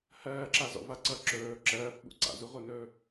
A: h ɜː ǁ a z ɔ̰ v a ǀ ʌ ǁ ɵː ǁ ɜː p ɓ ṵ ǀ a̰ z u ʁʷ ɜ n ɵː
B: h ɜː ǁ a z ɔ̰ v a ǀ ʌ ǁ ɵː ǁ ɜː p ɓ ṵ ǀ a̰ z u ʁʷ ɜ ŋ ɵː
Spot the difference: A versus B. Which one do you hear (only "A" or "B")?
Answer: A